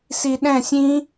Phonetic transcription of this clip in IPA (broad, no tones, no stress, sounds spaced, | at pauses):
s i ɗ ɛ̃ sʲ ĩ